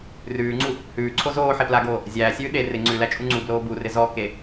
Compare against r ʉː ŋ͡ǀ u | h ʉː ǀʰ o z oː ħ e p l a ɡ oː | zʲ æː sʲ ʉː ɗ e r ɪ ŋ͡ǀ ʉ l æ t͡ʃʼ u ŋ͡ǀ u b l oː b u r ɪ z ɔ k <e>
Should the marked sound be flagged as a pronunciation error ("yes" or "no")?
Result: no